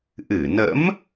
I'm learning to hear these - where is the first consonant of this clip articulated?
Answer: throat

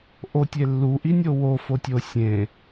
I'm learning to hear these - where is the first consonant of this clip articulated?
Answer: throat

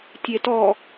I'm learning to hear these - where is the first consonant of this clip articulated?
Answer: tongue tip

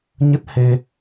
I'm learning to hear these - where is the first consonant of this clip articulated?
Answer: palate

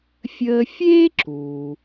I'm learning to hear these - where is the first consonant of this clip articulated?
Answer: lips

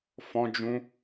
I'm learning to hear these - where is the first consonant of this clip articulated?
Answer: lips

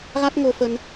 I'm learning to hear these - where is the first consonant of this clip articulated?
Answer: velum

